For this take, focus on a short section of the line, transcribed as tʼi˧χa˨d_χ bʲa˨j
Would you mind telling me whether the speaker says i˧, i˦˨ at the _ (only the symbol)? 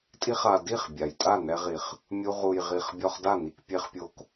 i˦˨